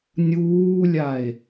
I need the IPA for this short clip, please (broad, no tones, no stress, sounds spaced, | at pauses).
nʲ uː lʲ a e̯